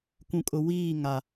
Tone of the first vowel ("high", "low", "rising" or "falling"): low